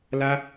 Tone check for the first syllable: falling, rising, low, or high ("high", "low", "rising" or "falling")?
high